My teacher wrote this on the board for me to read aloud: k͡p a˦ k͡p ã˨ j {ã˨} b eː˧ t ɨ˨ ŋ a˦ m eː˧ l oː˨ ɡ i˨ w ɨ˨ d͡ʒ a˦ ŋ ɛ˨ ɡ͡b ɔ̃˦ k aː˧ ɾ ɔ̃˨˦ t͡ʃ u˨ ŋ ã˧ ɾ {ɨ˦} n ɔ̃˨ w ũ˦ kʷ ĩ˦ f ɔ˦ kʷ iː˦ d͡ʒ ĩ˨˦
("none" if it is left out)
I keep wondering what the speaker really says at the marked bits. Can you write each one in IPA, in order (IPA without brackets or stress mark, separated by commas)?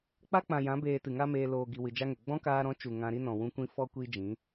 ã˨˦, i˦